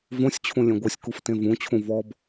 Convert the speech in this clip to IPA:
v õ sʲ t͡ɕʰ ũ lʲ ẽ ɡʷ ɜ sʲ k u f t ẽ v ũ t͡ɕʰ ũ v ɔ b

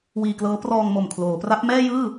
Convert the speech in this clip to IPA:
w iː˧ k l ɤː˦˥ p r ɔː˧ ŋ m o˨˩ m kʰ l oː˩˦ p r a˦˥ p̚ m ɛː˥˩ j ɯː˥˩

